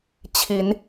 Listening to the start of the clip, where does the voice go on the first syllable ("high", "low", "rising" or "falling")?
rising